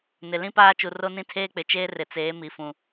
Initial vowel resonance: oral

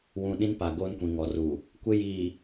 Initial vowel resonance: nasal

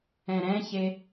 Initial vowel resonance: nasal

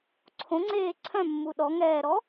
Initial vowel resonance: nasal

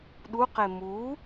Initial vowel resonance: oral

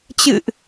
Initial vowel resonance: oral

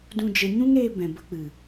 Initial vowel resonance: nasal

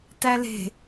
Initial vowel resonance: oral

